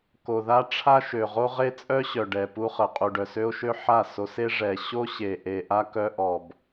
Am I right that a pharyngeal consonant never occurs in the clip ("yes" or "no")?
no